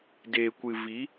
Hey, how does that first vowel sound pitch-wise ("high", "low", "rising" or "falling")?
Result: low